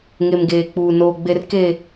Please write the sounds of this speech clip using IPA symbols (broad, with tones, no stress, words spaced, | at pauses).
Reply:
ŋe˨mɡeː˨k͡puː˨ noː˨ɡ͡be˨rke˨